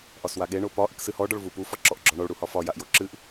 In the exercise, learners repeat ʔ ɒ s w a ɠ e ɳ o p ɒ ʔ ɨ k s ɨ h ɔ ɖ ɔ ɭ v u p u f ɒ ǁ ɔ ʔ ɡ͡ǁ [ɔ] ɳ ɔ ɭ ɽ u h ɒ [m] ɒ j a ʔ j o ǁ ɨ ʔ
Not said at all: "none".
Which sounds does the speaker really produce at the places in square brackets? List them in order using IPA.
ɔ, f

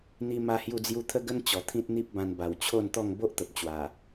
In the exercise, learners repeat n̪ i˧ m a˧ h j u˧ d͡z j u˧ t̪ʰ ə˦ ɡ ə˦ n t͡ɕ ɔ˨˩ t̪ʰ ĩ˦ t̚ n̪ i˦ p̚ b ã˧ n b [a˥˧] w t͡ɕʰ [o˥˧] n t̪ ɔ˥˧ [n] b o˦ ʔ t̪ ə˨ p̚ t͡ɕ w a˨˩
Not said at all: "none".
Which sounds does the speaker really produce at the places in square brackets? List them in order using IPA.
a˨˩, o˥˧, ŋ

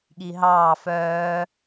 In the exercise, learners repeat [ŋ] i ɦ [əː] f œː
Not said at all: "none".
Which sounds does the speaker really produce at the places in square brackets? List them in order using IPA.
ɠ, ɑː

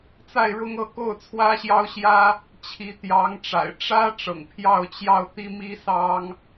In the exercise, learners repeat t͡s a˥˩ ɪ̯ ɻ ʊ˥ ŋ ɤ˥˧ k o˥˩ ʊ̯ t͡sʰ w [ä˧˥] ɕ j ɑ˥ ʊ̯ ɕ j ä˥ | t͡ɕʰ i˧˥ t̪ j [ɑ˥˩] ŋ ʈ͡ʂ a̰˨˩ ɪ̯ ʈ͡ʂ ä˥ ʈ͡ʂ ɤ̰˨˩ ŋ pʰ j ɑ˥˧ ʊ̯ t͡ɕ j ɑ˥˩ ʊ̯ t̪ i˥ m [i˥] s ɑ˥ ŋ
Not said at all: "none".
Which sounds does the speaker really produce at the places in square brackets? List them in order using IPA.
ä˥, ɑ˧˥, i˥

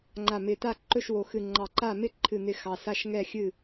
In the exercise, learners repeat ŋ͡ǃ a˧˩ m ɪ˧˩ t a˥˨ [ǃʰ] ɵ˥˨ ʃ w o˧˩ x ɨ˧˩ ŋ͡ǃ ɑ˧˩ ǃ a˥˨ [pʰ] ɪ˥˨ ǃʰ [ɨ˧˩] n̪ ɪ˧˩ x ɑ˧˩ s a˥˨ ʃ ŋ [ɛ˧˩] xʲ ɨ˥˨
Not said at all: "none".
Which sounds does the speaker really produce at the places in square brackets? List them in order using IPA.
ǃ, m, ɨ˧˩, ɛ˥˨

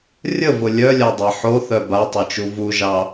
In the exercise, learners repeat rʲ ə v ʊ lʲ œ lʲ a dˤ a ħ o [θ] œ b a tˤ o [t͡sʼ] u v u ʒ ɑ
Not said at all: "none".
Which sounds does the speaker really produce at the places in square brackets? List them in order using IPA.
θ, t͡ʃ

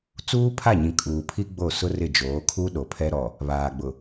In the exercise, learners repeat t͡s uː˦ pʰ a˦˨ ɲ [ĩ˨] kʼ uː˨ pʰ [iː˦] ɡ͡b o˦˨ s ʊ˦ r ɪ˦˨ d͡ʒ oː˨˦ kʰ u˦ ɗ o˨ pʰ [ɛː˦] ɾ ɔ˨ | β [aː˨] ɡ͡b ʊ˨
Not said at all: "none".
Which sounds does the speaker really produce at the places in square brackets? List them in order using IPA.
ĩ˨, i˦, ɛ˦, aː˨

